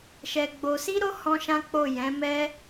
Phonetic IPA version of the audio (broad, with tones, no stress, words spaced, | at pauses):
ʃɛ˧ɡ͡bo˧ si˦ɾo˦ hɔ̃˦ʃã˦k͡po˦˨ jɛ̃˨˦mɛ˦